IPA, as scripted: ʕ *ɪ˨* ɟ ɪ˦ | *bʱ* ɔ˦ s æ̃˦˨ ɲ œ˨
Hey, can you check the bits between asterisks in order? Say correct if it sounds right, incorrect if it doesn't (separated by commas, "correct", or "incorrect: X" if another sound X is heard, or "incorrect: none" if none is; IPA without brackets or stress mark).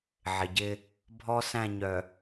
correct, correct